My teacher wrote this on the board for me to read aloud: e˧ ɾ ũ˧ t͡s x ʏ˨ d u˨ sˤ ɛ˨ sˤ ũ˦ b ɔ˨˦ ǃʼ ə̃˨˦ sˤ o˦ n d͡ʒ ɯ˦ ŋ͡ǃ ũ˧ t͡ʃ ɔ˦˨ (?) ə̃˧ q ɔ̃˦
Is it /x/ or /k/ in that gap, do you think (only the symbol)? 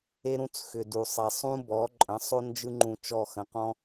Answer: x